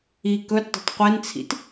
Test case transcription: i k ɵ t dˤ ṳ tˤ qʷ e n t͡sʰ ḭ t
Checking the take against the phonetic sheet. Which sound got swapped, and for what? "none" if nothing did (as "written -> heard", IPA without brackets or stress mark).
none